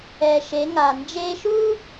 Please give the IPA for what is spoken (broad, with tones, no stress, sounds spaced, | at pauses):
ɛ˩ ʃ e˩˧ ŋ a˩ n d͡ʒ e˧ ʃ u˥